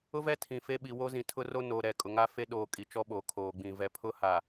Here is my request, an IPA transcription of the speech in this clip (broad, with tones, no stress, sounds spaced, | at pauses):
ʊ˦ v ɛ˦ tʰ ĩ˨ f e˦ ɓ i˨ w o˦ z ĩ˨ tʰ ʊ˦ r o˦ n oː˨ ɾ ɛ˨ kʼ ʊ˨ ŋ a˦ f e˦ ɗ oː˨ kʼ i˨ t͡ʃ ɔ˦ ɓ oː˨ kʰ oː˨ ɡ͡b ĩ˨ v ɛ˨ pʰ ʊ˦ h a˨